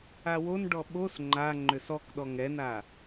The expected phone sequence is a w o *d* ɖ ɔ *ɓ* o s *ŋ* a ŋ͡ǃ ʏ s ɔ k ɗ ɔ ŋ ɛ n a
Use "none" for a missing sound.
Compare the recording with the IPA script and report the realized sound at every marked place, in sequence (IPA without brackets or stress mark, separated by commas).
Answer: n, ɓ, ŋ͡ǃ